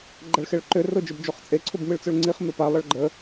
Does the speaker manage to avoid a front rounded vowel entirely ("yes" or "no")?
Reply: no